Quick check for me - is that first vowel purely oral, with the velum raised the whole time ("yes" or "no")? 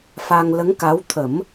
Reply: yes